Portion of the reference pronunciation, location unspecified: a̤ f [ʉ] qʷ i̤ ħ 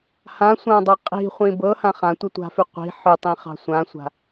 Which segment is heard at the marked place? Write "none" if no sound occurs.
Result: ʉ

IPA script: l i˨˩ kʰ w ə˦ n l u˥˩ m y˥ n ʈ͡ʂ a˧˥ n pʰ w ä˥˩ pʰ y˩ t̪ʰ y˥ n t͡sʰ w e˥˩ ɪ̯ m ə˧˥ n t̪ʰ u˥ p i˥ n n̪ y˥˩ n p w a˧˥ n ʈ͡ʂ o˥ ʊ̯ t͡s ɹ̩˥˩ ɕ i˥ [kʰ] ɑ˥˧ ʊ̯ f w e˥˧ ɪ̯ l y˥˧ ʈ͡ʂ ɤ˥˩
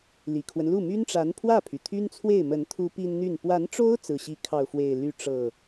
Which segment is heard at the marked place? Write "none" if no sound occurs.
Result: kʰ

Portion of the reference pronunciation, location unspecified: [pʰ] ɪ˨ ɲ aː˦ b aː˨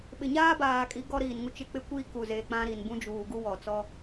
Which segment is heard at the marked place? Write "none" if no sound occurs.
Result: ɓ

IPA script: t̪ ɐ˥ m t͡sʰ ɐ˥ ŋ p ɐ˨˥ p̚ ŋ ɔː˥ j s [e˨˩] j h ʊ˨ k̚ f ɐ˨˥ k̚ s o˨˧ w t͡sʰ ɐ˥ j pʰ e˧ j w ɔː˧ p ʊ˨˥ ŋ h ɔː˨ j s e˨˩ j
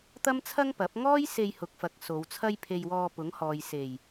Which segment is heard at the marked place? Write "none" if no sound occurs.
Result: e˧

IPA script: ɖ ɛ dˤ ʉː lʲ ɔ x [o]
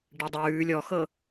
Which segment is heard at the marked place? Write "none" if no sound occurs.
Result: ɤ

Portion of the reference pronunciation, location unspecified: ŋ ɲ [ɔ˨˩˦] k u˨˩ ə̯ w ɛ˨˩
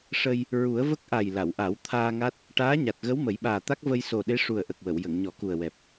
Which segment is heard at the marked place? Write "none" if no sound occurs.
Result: ɔ˨˩˦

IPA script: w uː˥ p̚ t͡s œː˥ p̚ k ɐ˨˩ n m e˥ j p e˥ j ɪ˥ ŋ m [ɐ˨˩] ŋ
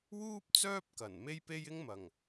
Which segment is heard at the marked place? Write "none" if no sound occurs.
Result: ɐ˨˩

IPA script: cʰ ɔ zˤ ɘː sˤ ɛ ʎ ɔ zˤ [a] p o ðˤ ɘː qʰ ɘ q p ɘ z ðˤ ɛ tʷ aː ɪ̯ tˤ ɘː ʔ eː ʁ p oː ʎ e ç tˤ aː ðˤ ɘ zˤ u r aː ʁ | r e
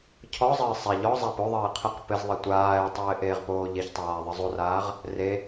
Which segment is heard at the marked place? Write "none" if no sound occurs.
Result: a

